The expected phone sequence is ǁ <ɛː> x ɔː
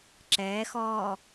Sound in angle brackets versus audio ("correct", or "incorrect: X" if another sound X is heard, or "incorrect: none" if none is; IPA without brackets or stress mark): correct